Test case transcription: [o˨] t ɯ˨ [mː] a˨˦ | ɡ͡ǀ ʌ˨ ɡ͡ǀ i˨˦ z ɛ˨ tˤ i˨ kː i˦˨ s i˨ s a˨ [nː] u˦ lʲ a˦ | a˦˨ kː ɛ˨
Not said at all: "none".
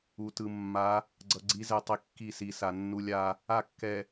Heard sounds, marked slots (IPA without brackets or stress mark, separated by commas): u˨, mː, nː